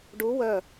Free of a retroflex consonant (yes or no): no